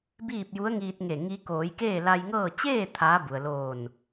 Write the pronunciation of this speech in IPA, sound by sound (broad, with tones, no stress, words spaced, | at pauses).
biː˥˨p̚ju˧˥ə̯ŋiː˧t̚ŋe˧˩ ŋi˧˥ koː˩˧jkeː˥˨la˧jŋɤː˥˨ t͡ɕeː˥˨ t̪ʰaː˧˥bu˩ə̯loː˧˩n